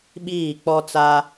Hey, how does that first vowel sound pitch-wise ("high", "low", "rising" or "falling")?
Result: falling